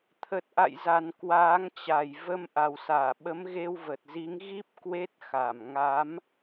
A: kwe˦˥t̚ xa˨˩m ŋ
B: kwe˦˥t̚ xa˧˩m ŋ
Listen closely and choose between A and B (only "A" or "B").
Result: B